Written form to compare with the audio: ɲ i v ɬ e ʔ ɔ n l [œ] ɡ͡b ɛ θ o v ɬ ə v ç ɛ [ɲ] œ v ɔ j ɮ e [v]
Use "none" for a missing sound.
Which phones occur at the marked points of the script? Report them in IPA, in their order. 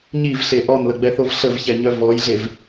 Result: ə, ɲ, v

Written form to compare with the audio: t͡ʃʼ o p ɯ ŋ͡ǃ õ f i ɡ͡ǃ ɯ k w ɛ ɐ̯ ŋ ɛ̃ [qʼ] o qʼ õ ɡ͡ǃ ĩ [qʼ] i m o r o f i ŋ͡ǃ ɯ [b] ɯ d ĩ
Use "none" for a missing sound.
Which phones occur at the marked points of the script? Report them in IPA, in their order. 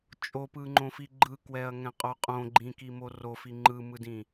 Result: qʼ, k, m

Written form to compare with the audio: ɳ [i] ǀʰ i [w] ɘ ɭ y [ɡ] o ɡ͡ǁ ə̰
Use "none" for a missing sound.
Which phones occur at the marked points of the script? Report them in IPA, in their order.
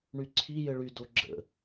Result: y, j, d

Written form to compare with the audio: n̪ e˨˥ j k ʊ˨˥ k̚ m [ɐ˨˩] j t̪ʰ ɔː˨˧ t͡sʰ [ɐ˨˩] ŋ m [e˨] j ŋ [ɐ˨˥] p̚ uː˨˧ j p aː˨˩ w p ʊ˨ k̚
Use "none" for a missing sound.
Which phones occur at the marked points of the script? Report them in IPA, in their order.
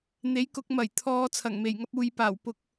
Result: ɐ˨˩, ɐ˨˩, e˨˩, ɐ˧

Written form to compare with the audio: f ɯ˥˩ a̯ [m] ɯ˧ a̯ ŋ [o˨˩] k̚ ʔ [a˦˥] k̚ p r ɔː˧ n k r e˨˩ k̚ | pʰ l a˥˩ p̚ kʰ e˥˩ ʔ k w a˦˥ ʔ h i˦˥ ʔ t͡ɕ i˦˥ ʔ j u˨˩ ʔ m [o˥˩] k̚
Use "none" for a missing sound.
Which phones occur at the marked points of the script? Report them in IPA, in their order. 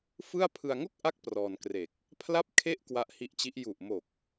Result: pʰ, o˥˩, a˦˥, o˨˩

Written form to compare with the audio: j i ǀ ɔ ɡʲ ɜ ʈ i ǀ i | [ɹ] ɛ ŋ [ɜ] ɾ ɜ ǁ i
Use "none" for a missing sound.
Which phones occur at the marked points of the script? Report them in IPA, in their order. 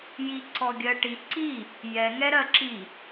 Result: j, ɛ

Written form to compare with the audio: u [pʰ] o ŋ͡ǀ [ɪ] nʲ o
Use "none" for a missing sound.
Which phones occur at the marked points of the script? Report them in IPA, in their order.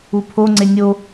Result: pʰ, ɪ

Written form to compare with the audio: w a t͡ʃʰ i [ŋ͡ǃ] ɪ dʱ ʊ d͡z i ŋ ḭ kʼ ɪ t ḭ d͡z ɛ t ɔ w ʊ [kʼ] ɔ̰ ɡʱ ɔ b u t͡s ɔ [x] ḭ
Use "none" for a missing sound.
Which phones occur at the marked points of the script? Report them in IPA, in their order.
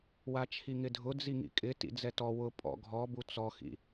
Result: ŋ, pʼ, x

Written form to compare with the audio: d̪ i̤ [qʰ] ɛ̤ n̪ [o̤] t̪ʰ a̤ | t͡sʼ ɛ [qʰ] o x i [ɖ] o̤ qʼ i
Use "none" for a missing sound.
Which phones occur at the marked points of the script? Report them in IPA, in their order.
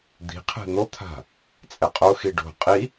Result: qʰ, o, qʼ, ɖ

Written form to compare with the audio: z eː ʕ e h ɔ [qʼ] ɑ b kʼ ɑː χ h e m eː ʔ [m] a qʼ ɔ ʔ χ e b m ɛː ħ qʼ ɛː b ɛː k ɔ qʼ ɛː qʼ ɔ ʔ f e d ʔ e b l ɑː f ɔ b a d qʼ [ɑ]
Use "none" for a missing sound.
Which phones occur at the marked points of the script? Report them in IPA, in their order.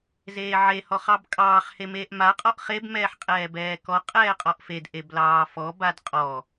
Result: χ, m, ɔ

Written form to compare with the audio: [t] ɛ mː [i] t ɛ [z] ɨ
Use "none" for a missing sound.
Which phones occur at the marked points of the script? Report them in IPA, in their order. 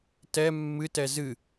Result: t, ɨ, z

